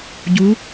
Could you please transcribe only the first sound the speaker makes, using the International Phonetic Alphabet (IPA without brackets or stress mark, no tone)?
ɟ